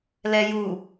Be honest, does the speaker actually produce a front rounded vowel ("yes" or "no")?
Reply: no